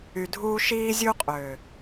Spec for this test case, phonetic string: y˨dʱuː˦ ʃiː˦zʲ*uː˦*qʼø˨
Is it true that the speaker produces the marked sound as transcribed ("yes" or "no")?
no